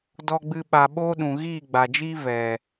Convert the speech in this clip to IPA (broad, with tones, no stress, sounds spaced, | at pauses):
d ɔ˦ ɡ͡b ɨ˦ ɓ a˧ ɓ oː˦ ɗ ũ˨ ɣ iː˦˨ ɡ͡b a˨ d͡ʒ iː˦ v ɛ˨